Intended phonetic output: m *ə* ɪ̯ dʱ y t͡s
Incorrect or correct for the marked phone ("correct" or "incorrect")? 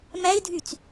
incorrect